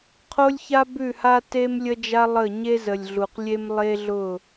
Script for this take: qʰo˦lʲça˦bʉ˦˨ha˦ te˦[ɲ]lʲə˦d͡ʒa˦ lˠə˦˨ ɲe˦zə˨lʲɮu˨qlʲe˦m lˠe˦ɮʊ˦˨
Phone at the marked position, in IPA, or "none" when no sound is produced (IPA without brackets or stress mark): m